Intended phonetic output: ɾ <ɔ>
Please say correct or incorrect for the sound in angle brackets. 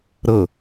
incorrect